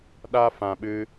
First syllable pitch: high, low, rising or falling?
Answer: high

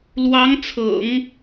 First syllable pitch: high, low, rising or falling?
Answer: rising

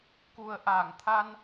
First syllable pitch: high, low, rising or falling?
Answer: low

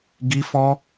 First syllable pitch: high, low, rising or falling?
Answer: high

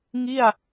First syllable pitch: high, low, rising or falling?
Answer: falling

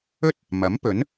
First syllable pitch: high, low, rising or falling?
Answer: high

